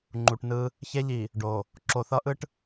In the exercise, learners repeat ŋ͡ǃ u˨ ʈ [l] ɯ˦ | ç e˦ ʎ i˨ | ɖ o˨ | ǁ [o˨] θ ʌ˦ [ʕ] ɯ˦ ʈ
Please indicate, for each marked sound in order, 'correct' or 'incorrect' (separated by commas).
incorrect, correct, incorrect